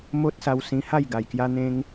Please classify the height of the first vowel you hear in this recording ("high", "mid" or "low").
mid